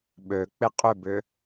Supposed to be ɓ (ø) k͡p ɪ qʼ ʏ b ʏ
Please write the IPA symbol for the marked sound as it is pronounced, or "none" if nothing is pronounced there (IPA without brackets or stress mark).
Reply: ø